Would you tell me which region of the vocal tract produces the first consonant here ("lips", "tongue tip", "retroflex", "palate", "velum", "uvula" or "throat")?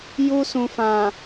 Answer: palate